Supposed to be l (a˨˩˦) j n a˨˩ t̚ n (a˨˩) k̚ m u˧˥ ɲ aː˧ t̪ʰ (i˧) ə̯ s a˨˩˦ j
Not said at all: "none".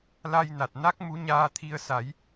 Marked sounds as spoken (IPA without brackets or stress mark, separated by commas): a˧, a˦˥, i˧